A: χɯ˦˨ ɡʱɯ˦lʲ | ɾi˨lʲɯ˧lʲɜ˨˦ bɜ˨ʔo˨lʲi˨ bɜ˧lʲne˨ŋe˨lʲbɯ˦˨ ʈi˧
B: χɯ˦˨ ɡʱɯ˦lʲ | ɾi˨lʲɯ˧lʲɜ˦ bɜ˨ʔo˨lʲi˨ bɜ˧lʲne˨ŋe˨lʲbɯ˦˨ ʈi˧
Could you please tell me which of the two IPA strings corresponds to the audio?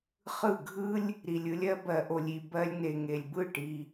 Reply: B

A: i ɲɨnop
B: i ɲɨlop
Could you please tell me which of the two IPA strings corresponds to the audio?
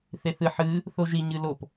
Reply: B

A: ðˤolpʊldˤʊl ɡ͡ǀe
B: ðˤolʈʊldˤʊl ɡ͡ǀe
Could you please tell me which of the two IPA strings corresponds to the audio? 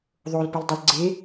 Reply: A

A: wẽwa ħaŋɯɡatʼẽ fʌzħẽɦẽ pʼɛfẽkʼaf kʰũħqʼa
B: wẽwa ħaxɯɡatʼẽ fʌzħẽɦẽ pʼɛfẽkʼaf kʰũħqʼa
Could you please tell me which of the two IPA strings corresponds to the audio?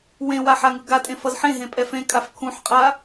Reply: A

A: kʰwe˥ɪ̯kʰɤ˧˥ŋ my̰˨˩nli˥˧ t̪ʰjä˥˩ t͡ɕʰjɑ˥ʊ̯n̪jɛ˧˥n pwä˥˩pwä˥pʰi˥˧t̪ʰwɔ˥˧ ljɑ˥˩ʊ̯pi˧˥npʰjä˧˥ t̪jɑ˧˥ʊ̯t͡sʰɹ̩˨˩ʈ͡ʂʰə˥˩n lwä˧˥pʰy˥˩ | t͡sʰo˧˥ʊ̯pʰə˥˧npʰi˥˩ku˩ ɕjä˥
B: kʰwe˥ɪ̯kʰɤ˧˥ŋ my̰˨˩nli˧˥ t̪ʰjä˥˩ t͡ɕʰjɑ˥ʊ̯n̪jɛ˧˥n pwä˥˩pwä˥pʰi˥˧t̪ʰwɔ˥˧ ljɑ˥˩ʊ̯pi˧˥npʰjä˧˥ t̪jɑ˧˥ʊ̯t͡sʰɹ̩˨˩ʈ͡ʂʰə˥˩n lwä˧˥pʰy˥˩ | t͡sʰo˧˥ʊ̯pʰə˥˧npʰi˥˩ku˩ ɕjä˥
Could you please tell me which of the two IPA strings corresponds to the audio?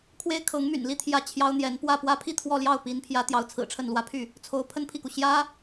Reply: A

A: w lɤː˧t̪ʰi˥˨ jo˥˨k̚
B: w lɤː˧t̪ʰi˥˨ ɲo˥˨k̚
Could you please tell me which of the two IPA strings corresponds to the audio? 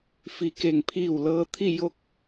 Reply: A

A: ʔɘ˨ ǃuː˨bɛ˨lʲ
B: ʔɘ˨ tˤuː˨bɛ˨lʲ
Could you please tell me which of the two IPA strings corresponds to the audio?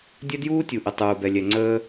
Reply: B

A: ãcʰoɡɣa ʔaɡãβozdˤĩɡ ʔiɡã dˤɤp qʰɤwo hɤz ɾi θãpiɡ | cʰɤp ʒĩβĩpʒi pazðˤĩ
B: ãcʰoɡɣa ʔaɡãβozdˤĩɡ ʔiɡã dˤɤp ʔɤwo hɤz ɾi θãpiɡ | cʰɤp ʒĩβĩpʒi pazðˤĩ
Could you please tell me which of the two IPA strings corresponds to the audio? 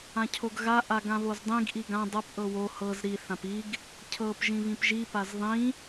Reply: B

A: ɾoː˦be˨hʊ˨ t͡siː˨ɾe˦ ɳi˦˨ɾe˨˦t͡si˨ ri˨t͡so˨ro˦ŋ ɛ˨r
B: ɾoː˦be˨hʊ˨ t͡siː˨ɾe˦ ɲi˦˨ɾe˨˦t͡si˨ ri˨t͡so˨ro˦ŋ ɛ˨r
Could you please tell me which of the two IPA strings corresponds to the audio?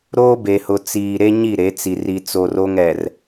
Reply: B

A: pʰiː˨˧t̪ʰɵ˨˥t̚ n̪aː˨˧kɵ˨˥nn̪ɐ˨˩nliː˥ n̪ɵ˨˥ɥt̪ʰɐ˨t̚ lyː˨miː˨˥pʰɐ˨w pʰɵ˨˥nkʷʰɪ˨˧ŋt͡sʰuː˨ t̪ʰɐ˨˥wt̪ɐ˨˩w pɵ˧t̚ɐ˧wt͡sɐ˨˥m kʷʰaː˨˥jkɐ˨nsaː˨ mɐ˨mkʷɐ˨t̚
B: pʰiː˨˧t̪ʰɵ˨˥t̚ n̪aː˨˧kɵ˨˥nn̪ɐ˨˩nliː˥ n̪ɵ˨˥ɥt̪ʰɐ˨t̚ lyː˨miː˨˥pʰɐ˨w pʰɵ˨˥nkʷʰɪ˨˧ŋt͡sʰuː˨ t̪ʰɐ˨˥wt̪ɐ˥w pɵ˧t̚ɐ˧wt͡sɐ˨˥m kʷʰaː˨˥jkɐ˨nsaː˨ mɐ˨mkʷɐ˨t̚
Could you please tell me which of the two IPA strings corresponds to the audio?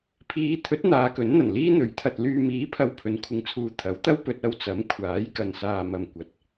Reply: B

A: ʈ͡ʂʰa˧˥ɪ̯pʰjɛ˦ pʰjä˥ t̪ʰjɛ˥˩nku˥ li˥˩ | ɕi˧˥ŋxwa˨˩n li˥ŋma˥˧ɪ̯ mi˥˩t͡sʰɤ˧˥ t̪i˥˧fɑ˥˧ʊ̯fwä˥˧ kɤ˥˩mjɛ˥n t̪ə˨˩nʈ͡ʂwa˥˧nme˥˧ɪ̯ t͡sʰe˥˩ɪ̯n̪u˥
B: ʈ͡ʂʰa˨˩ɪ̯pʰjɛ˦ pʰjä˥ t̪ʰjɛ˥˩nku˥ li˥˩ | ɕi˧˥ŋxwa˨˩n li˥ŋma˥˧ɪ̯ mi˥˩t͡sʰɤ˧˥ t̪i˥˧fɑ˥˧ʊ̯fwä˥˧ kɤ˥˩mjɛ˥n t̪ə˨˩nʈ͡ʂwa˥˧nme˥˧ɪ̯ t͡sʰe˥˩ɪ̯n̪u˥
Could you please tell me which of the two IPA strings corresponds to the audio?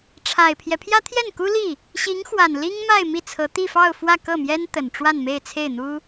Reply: B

